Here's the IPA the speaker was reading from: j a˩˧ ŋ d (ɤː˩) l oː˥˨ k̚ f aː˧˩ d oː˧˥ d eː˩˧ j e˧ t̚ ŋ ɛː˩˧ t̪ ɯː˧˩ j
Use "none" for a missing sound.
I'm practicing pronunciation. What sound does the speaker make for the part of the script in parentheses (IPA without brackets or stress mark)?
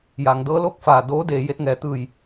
ɤː˧˥